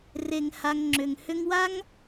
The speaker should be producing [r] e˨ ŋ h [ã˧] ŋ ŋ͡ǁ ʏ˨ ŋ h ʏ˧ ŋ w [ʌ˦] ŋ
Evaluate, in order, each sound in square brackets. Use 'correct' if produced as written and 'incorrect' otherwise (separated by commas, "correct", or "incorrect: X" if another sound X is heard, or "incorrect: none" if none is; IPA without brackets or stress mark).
correct, incorrect: a˧, incorrect: a˦